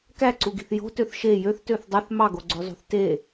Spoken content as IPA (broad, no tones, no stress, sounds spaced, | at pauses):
k æ ǀ u ɡ i̤ θ j o̤ t ø θ ʃ e j ø θ t ø θ dˤ e θ m ɑ ɡ o ɡ͡ǀ ø zˤ ṳ θ t e